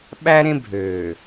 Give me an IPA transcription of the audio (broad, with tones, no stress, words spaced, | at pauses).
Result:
ɓæ˦ ɾẽ˦bʱøː˨